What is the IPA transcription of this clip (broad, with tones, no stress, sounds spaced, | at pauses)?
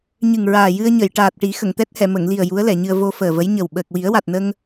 ɲ ɨ˨˩ ŋ ɹ aː˨˩ j ɨ˧ ə̯ ɲ ə˨˩˨ j ʈ aː˨˩ t̚ ʈ i˨˩˦ x ə˨˩˨ ŋ t̪ ɛ˦˥ t̚ h ɛ˨˩˨ m ə˨˩˨ ŋ l i˨˩ ə̯ j u˧˥ ə̯ l ɛ˨˩˨ ɲ ɨ˧ ə̯ v o˧ f əː˨˩ v ə˧˥ j ɲ ə˨˩ w ɓ əː˨˩ k̚ w i˨˩˦ ə̯ w a˨˩ t̚ n ə˧ ŋ